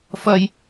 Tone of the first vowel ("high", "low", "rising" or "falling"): high